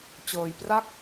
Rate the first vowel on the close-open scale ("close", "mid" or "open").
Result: mid